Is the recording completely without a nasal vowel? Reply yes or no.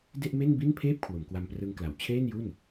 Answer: yes